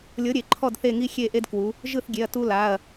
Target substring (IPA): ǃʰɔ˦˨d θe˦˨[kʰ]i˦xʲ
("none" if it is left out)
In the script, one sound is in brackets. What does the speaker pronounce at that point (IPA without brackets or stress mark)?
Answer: ŋ